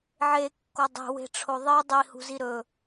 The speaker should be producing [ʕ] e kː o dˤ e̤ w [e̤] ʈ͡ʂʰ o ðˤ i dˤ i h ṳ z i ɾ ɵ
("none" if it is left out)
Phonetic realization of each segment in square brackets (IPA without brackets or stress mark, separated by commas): ʕ, e̤